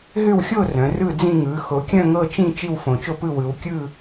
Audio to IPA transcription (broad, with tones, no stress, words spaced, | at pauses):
ɦʏ˥˨wxʲo˥˨ rœ̃˩˧rɯ˥˨d͡zĩ˥˨ ŋɯ˩˧xo˩˧kʲœ̃˥˨ ŋɤ˥˨t͡ʃĩ˥˨ t͡ʃi˥˨wfõ˩˧t͡ʃo˥˨pɯ˥˨ wɯ˩˧w kʲɯ˥˨